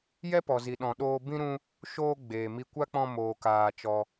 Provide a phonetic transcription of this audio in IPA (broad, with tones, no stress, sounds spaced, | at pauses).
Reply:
j ɛ˦ p ɔ˨ z i˨ ɗ ɔ̃˨ ɗ oː˧ b ĩ˦ ɾ ũ˧ | ʃ oː˧ ɡ͡b eː˨ m i˧ kʷ a˦ k͡p ɔ̃˧ m oː˨ k aː˨ t͡ʃ ɔ˧